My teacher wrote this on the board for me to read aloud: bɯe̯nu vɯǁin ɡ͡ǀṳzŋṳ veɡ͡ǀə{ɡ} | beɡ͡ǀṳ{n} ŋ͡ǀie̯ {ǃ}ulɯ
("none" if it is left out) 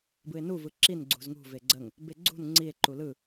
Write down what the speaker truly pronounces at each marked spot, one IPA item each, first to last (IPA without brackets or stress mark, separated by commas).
ŋ, n, ǃ